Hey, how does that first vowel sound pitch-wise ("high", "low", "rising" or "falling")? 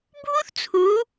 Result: high